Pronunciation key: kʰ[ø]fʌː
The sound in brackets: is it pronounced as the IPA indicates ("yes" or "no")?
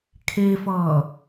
no